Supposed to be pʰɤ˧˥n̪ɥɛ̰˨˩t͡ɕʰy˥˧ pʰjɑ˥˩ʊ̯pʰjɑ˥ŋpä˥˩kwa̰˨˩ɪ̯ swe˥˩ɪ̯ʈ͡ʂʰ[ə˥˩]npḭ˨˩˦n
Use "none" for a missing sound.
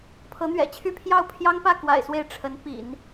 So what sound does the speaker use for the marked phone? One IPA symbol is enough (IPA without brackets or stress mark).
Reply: ə˧˥